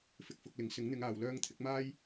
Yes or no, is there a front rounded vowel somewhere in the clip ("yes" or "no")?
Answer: yes